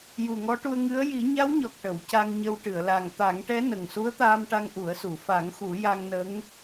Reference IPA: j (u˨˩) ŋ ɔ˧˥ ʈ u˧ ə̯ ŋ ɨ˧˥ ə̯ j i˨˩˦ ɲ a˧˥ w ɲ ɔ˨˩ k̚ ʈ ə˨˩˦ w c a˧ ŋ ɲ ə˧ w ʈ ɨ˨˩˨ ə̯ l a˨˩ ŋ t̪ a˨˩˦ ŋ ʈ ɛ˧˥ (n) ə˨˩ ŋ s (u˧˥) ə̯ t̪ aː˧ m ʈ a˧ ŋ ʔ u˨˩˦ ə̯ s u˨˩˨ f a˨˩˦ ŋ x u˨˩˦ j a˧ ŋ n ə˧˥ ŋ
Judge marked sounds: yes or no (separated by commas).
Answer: yes, yes, yes